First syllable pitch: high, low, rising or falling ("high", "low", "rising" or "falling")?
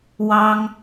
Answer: high